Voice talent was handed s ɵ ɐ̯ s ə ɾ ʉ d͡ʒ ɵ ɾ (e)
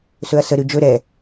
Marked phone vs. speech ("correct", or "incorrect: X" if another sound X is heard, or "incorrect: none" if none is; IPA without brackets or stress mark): incorrect: ɛ